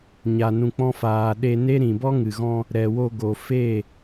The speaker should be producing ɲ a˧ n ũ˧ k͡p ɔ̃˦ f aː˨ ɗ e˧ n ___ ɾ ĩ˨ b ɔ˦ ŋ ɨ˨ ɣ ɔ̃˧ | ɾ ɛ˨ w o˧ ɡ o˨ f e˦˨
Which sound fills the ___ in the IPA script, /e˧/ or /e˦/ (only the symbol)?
e˦